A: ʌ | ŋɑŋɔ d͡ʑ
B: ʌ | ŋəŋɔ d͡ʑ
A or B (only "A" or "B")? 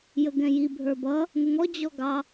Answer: B